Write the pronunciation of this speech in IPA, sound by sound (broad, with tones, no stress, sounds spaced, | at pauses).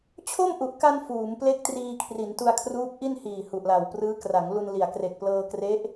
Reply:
t͡ɕʰ o˥˩ m ʔ u˨˩ ʔ k a˧ n f uː˩˦ m p l e˥˩ k̚ t r iː˧ kʰ r i˩˦ n t u˧ a̯ kʰ r uː˦˥ p̚ ʔ i˥˩ n h iː˨˩ h u˨˩ ʔ l a˨˩ w p r ɯː˦˥ k r a˩˦ ŋ l u˧ n l i˨˩ a̯ k r e˨˩ k̚ p l ɤː˧ k r e˦˥ ʔ